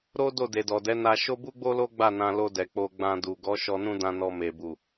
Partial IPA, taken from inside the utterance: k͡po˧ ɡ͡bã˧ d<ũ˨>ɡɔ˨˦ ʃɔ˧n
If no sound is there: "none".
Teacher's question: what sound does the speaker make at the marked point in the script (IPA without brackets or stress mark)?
u˨